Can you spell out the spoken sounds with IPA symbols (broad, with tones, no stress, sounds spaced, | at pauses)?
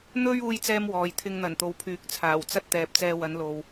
n̪ ɵ˥ ɥ uː˥ j t͡s ɛː˥ m w ɔː˨ j t̪ʰ ɪ˧ ŋ n̪ ɐ˨˩ n t̪ o˨ w pʰ yː˨˥ k̚ t͡sʰ aː˨˩ w t͡s ɐ˥ t̚ t̪ ɛː˨ p̚ t͡s ɛː˧ w ɐ˨˧ n l o˨ w